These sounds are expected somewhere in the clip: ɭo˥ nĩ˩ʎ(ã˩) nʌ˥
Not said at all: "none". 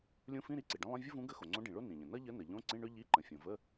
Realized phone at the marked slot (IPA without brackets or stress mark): ə̃˩